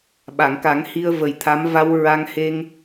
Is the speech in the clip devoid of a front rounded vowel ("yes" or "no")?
yes